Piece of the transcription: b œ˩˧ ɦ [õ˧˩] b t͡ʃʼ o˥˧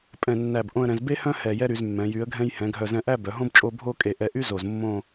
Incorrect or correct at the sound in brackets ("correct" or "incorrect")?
incorrect